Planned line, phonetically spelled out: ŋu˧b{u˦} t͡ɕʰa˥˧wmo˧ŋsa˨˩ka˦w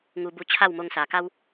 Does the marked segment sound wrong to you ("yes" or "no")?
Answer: yes